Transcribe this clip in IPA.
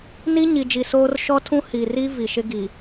n i˦ ɲ i˨ d͡ʒ i˨ s oː˦ r ʃ ɔ˦ tʰ ũ˦ h i˨ r i˦ v i˨ ʃ ɪ˦ ɡ i˨

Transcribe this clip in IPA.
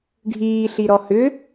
ɖʱ iː ɬ i ɾ ɔ h ʏ

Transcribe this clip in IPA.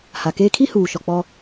h a˨ k eː˦ kʰ i˦ h uː˨ ʃ ɔ˨ k͡p ɔ˦

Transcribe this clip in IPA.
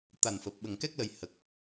t̪ a˨˩ n f əː˨˩ p̚ ɓ ə˨˩ ŋ k ɛ˦˥ k̚ l ə˨˩ j h ə˨˩ k̚

